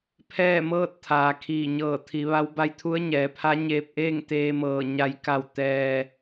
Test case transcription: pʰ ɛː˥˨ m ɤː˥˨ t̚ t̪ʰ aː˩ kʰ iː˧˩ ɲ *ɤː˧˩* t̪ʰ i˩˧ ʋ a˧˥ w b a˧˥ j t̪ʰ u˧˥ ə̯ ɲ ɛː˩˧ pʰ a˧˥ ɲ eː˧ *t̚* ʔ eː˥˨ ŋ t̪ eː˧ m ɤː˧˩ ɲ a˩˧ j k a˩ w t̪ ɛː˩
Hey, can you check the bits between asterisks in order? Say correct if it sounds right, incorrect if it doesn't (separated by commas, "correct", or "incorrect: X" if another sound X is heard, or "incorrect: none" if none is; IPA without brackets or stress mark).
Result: correct, incorrect: p̚